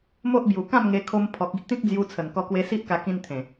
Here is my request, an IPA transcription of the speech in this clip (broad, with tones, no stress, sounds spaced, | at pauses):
m o˦ ʔ b j u˨˩ k ã˥˧ m ŋ e˧ kʰ o˧ m pʰ ɔ˨ k̚ i˦ ʔ t̪ ĩ˦ k̚ d͡z j u˧ t͡sʰ ə˨˩ n k ɔ˧ k w e˧ s i˦ ʔ k a˧ k ĩ˦ n t̪ʰ ẽ˨˩